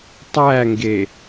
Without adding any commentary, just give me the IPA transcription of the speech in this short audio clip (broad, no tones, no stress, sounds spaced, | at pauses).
tˤ æ ŋ ɡ e